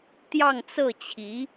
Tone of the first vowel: falling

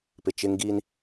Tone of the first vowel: low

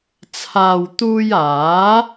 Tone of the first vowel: low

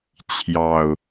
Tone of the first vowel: low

